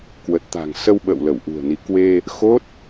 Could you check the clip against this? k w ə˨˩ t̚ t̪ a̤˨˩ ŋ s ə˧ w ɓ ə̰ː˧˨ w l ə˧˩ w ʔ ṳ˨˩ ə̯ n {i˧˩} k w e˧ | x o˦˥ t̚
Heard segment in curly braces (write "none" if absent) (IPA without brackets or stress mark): i˨˦